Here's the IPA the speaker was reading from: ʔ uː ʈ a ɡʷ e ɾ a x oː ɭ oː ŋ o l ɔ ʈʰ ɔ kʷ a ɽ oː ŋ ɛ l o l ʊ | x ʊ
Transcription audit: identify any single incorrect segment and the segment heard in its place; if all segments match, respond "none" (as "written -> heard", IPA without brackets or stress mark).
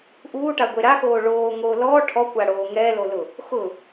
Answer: none